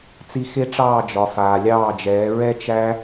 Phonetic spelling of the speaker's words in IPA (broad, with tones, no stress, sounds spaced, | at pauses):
t͡s i˧ x e˦ ʈ͡ʂ ɑː˦˨ d͡ʒ ɒ˨ f aː˨ lʲ ɑː˦˨ d͡ʒ ɛː˨˦ ɹ ɛ˦ t͡ʃ æ˦